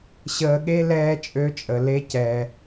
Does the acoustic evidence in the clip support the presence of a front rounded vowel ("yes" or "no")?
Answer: yes